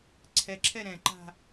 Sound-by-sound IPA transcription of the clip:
ǀʰ ɛ ǁʰ ɛ ɾ ɛ̃ ǃ a̤

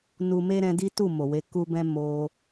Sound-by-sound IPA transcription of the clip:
n u˦ m e˦ ɾ ɛ̃˧ d i˦ t u˦˨ m o˨ w e˧ k u˦ b ɛ̃˦ m o˧

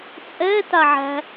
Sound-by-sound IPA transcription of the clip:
t͡sʼ ɛ t a ʕ æ̤

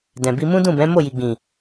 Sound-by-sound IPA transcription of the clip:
d ɛ̃˨ b i˧ m ũ˦ d ũ˦˨ b ɛ̃˨˦ m o˦˨ j i˨ ɡ͡b ĩ˨

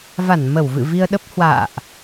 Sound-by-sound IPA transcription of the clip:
v a˧˩ n m ə˧˩ w v ɨ̰˧˨ v i˧ ə̯ ɗ ə˦˥ p̚ h w a̰ː˧˨ ʔ

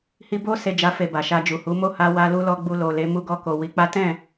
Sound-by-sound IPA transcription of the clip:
h i˧ b o˦ s e˧ d͡ʒ a˧ f e˨ b a˨ ʃ a˧ d͡ʒ u˨ h u˨˦ m o˦˨ h a˧ w a˧ l u˧ l ɔ˧ ɡ͡b u˧ l o˨ l e˨˦ m u˧ ɡ ɔ˧ k o˨ w i˨˦ k͡p a˦ t ɛ̃˦˨

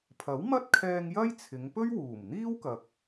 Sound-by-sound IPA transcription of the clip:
pʰ ɐ˨˥ w m ɐ˥ t̚ kʰ ɛː˧ ŋ j ɐ˥ j t͡sʰ ɪ˨˧ ŋ p ɵ˥ ɥ w uː˨˩ m n̪ iː˥ w k ɐ˨ k̚

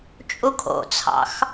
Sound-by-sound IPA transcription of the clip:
t͡ʃʼ u kʰ o̰ t͡sʰ ɑ̰ x

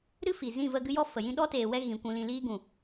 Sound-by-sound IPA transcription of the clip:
ɾ ɨ˦ f i˨ z ĩ˦˨ v ə˧ ɡ ɨ˦ j ɔ˦ f ə˨ j ĩ˦ ɗ ɔ˦ t eː˨ w ɛ˧ ɣ ĩ˨ kʷ ũ˨ l ĩ˨ l iː˧ ɡ ũ˨

